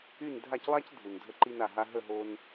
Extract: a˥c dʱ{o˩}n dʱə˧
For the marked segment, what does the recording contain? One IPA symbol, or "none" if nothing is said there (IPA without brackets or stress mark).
u˩